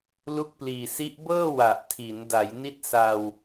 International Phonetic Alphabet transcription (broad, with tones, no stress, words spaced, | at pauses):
lu˦˥k̚pliː˨˩si˦˥ʔ bɤː˥˩wa˨˩ʔtʰi˩˦n da˩˦jni˦˥t̚ sa˧w